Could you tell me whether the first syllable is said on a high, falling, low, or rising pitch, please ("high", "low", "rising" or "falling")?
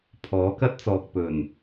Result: rising